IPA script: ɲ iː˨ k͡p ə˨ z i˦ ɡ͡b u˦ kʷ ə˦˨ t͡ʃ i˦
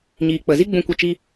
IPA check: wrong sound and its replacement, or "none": u˦ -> ũ˦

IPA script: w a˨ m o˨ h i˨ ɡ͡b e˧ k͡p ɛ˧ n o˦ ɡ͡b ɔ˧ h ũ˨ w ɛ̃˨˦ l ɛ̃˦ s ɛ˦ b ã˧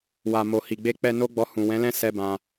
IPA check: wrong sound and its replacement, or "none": none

